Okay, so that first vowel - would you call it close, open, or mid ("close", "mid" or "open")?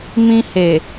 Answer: close